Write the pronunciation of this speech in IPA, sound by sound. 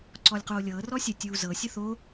ǀ ɔ lʲ q oː lʲ ɤː r ɔ sʲ ə tʲ uː z ɤ sʲ ə θ o

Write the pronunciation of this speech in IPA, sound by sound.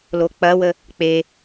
l o k͡p ɐ w ə | k͡p e

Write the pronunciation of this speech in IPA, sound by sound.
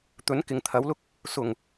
t̪ ɵ˨˥ n k ɪ˨ ŋ t̪ʰ ɐ˨˥ w l ʊ˥ k̚ | s ʊ˨˩ ŋ

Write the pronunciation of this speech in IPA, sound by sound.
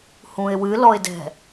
h ũ ɪ̯ w ɨ l ɔ ɪ̯ d ɛ̤

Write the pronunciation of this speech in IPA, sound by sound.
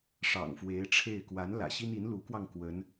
ʂ ɑ̰˨˩ ŋ f w e˧˥ ɪ̯ ʈ͡ʂʰ e˥˩ ɪ̯ k w a˧˥ n l ä̰˨˩ ɕ i˥ n i˧˥ n l u˧˥ k w ɑ˧ ŋ k w ə˧˥ n

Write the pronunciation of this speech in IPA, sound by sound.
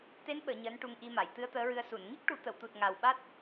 t̪ e˧˥ n ɓ əː˨˩˨ ɲ əː˧˥ n ʈ u˧ ŋ ʔ i˧ m a˨˩˨ j t̪ ɨ˧˥ ə̯ t̪ əː˧˥ ɹ ɨ˧ ə̯ s u˨˩˨ n ŋ i˦˥ k̚ ʈ u˨˩˦ t̪ ə˨˩˨ w t̪ u˨˩ t̚ ŋ a˨˩ w ɓ a˦˥ t̚

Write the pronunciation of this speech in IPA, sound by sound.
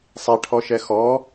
sˤ ɛ ʈʰ ɔ ʃ ɛ x ɔ

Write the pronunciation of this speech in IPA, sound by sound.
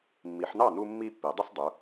mː i˩˧ ħ n̪ ɑ˥˩ n u˦ mː i˦ pː i˩˧ dˤ ʊ˦ s dˤ u˩˧

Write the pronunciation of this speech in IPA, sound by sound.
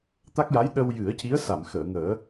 t̪ a˦˥ k̚ j a˧˥ j ɗ ə˧ w j ɨ˨˩˦ ə̯ c i˧˥ ə̯ s a˨˩˨ m x əː˨˩˨ ŋ əː˨˩˦

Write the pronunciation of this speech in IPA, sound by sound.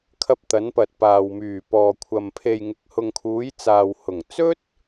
kʰ ɐ˧ p̚ t̪ ɐ˨˧ n p ɐ˨ t̚ p aː˨ w m yː˨˩ p ɔː˨ kʷʰ ɐ˨ m pʰ e˨ j ŋ ɪ˨ k̚ h ʊ˨ ŋ kʰ uː˨˧ j t͡s aː˨ w h ʊ˨˩ ŋ t͡s ɵ˥ t̚

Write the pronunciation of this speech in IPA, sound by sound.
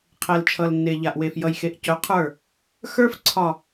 qʰ ɛ˨ l t͡ʃʰ ʌ˨ l nː e˨ ʎ a˨ ʔ w e˨ f j ʌ˨ j x e˨ ʔ c œ˨˦ qʰ ə˞˦˨ | x ə˞˦ f ǀʰ ɒ˨

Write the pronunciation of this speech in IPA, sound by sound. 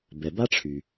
b ɛ˨ b a˥ ʈ͡ʂʰ y˩

